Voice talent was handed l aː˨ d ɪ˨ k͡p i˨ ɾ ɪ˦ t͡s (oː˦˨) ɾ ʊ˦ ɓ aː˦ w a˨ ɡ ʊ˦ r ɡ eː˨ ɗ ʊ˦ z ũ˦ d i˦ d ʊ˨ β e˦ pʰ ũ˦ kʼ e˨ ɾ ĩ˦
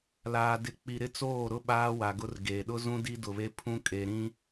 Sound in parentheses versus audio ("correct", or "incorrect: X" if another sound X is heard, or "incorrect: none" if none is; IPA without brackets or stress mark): correct